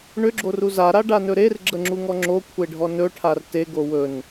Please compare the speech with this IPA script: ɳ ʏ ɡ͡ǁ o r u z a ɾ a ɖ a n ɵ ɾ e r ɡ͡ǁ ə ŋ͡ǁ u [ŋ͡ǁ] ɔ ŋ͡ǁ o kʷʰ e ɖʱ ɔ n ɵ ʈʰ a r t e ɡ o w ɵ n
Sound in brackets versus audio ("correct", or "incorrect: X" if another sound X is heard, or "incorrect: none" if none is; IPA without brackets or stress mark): incorrect: ŋ